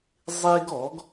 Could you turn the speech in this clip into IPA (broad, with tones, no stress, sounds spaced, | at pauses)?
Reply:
zˤ e˦ ɡ ɔ˨˦ ɡ